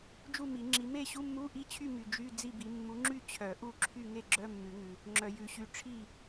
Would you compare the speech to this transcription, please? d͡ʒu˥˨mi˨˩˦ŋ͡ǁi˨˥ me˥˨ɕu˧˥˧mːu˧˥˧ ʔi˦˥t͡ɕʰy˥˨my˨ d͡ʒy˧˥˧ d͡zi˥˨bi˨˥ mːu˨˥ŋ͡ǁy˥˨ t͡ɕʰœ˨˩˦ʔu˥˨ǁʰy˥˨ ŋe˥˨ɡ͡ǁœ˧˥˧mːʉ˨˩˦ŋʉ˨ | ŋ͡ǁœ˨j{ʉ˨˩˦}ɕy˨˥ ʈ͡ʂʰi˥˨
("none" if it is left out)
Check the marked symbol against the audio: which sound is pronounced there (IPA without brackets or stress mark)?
ʉ˨˩˦